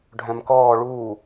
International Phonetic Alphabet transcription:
ɖʱ œ̃ m k ɔː ɭ uː

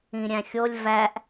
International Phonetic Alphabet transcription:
ĩ ɾʲ æ̃ xʲ o lʲ v æ ʔ

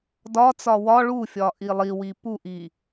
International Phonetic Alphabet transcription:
d ɒ t͡s ɒ w ɒ ɭ u fʲ ɒ ʔ i lˠ i w i p u ʔ i

